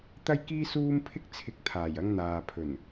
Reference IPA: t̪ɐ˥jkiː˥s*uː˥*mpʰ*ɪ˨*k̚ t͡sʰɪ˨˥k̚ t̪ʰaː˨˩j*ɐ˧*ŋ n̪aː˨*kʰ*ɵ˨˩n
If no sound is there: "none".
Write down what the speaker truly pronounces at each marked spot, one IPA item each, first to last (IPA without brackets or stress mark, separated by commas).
uː˥, ɪ˥, ɐ˧, pʰ